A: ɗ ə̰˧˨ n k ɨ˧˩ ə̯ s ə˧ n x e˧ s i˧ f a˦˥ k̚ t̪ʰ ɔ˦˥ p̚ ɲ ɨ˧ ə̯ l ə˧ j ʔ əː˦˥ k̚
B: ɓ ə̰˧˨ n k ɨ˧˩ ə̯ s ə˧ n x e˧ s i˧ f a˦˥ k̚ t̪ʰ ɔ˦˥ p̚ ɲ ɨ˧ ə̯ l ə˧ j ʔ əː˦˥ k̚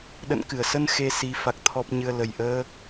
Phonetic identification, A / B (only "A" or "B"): A